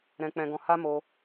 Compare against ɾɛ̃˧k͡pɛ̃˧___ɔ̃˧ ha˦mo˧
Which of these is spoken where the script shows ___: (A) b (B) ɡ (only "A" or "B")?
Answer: B